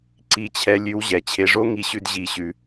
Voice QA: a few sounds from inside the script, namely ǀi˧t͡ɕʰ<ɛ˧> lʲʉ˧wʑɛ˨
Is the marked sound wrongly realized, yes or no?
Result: no